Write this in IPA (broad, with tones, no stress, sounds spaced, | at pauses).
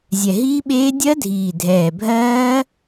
zʲ ɛ˨˩ ɦ iː˦˥ ɓ eː˦˥ dʲ ɜ˦˥ dʱ iː˨˩ dʱ ɛː˨˩ bʱ ɜː˦˥